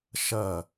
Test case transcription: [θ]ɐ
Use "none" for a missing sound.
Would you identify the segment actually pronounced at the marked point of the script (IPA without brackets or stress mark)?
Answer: ʃ